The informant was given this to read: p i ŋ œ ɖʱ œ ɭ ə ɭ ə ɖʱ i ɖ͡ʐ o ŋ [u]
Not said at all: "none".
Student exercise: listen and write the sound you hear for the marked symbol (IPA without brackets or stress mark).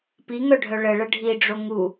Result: u